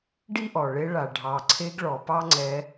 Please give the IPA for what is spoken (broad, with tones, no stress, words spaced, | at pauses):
ɖi˦ʔɔ˨ ɭe˧ɭa˨ ɖʱɑ˨ ǀʰe˧ɡɭɔ˨ pɑ˦ŋ͡ǀɛ˧